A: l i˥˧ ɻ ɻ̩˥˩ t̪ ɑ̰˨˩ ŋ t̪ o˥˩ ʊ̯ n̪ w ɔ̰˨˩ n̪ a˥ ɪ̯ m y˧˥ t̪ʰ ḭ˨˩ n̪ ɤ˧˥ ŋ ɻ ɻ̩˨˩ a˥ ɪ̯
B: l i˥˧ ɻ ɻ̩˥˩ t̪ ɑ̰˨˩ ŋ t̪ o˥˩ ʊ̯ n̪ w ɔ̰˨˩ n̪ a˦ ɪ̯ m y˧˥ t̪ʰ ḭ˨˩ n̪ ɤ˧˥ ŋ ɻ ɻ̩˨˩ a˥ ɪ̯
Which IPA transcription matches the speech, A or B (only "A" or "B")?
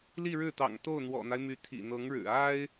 B